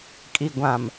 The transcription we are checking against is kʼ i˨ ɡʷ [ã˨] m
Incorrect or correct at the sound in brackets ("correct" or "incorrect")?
correct